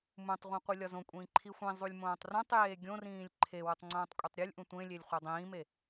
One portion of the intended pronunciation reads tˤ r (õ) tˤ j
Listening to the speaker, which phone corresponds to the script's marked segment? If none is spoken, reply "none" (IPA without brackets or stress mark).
ũ